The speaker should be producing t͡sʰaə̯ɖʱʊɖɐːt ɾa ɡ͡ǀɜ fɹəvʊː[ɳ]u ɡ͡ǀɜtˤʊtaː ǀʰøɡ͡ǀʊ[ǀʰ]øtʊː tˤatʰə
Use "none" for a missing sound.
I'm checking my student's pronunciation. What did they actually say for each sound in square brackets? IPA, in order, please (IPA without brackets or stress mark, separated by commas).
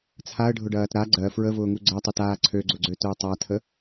ŋ, ɡ͡ǀ